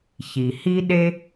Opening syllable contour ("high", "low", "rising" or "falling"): low